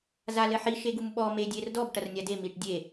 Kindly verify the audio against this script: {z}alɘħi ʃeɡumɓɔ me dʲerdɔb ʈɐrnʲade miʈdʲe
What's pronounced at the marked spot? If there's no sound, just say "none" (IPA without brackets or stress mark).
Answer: z